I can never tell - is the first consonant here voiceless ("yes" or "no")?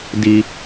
no